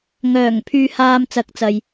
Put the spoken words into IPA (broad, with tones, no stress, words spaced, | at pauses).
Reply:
ŋœː˨˩ŋ pʰyː˧haː˧mt͡sɐ˨˥k̚t͡sɐ˨j